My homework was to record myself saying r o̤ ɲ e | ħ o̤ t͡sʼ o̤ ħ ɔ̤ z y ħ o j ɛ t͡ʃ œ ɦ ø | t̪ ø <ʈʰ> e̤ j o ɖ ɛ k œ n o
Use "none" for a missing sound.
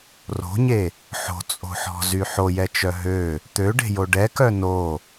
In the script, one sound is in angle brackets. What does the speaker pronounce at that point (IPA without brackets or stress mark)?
ɖ